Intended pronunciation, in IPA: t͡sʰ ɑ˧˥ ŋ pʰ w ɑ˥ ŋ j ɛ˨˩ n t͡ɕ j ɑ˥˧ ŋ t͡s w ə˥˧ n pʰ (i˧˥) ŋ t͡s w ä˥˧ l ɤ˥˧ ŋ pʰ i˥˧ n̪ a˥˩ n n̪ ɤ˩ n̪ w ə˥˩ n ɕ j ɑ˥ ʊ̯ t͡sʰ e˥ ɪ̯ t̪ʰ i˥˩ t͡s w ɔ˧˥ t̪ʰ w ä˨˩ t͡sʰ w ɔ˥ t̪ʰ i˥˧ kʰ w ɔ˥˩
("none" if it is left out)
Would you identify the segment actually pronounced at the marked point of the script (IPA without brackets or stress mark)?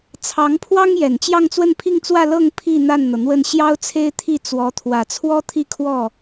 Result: i˥˧